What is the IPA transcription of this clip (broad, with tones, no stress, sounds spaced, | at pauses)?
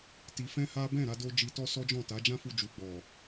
t i˧ f ɛ̃˦ h a˦ b ɛ̃˦˨ ɾ a˧ d o˧ d͡ʒ i˧ t ɔ˦ s ɔ˦ d͡ʒ ɔ̃˦˨ t a˨˦ d͡ʒ ã˦ f u˧ d͡ʒ u˨ ɡ͡b ɔ˨